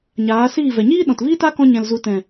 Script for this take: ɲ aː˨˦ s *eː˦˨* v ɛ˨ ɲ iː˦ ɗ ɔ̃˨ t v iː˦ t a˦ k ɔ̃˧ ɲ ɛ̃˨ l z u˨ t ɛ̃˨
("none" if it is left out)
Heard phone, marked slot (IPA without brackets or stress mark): iː˦˨